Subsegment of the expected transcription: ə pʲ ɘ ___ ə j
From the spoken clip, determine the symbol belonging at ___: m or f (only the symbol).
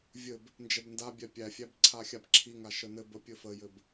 f